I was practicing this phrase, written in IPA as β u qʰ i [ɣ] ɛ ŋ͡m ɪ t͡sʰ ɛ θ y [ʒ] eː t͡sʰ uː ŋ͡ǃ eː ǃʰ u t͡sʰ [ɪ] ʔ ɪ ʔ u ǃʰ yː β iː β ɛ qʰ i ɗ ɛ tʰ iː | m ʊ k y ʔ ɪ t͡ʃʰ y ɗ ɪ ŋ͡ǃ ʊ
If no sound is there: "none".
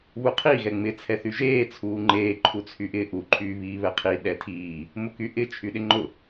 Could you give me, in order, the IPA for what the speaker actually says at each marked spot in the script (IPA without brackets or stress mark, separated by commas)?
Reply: ɣ, ʒ, y